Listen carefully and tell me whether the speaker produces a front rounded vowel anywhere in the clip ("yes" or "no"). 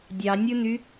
yes